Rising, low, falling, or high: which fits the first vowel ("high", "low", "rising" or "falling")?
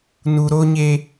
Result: low